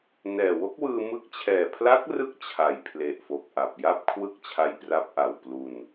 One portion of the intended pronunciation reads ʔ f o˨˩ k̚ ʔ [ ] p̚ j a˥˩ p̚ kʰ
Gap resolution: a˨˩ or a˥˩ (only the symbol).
a˨˩